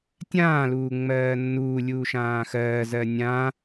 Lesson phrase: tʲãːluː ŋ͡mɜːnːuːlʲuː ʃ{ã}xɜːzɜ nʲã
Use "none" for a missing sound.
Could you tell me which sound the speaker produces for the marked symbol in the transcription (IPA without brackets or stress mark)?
ãː